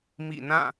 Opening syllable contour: falling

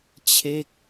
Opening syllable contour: falling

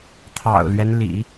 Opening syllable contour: low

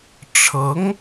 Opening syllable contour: rising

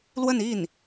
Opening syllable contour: falling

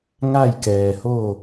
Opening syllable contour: falling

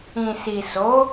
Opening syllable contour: low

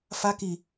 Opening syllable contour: high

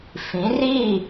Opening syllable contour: rising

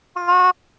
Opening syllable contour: high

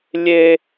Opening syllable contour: high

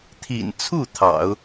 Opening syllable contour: low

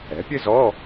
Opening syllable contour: rising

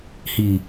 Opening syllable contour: low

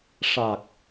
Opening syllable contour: low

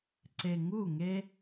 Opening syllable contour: low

